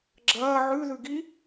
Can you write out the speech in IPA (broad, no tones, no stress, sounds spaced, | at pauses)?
ɡ͡ǁ ɐː ʕ ʉ ð ʉ ɡ i